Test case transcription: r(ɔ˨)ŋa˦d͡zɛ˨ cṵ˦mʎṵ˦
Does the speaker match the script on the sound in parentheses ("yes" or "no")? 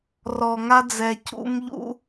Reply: yes